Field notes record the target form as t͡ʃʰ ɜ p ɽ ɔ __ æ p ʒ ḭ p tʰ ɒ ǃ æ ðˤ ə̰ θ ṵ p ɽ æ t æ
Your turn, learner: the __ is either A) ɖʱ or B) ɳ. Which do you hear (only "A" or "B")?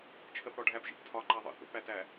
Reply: A